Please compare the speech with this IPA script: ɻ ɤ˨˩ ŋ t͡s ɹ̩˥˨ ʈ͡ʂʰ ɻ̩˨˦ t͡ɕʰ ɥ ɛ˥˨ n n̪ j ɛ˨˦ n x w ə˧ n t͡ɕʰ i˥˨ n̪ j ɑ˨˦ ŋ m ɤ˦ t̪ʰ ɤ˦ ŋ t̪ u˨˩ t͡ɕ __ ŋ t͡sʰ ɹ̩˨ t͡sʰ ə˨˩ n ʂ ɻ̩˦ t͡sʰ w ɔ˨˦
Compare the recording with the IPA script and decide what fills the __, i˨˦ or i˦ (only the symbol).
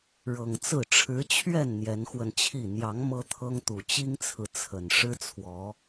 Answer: i˦